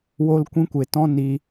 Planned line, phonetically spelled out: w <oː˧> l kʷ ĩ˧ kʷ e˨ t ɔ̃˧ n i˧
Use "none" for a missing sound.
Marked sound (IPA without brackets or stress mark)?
o˧